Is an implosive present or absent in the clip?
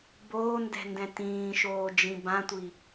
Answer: absent